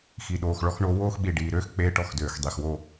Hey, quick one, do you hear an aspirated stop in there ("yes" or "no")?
no